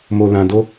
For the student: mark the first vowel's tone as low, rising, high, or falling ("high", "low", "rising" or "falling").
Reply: low